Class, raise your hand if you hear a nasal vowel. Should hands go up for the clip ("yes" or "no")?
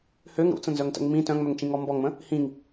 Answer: yes